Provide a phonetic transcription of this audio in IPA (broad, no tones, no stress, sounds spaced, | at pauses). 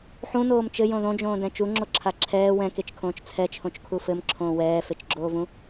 ħ ũ n oː m t͡ʃ ɘ j õ ð õ d͡ʒ õː d ɛ̃ t͡ʃ u ŋ͡ǁ o ǁʰ a ǁʰ ɛː w ɛ̃ k e t͡ʃ kʰ õː t͡ʃ t͡sʰ ɛ t͡ʃʰ õ t͡ʃ kʰ u f ɘ m ǁʰ õː w ɛː f e t͡ʃ ɡ͡ǁ oː v ũ